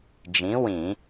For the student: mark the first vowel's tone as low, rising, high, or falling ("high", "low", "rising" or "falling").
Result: rising